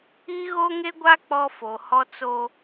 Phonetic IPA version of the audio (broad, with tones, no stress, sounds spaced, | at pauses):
i˦ ɣ o˦ ŋ e˦ ɡʷ a˦ k͡p ɔ˦ f o˨ h ɔ˦ t͡s o˦